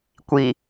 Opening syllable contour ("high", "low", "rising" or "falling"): low